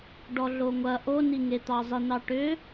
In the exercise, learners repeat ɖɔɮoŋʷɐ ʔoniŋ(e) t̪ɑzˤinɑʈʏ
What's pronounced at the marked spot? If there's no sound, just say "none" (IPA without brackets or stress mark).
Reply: e